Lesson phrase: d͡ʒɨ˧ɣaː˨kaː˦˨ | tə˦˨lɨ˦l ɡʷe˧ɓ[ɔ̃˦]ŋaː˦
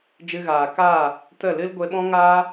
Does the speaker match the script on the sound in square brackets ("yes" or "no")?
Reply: yes